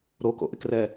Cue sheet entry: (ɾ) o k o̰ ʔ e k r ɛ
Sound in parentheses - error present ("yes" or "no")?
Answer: no